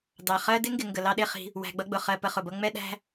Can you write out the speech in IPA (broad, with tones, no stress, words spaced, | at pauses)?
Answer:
dɑ˩χɜ˦dɪ˥ŋɡɪ˨ ŋɡə˩lɑ˦ɗɪ˦χi̤˨ | wæ̤˨ɡ͡bʌ˦ɡ͡bʊ˩χɜ˨ pə˨χʊ˩bʌ˦ ŋ͡mɛ˦ɗæ̤˦